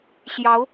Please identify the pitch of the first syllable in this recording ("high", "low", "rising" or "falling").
rising